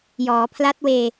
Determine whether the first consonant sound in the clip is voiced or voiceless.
voiced